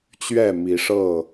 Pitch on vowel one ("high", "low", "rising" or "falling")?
falling